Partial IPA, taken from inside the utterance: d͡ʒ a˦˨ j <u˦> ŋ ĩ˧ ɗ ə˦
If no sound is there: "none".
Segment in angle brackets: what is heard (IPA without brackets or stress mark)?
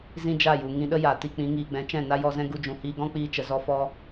u˨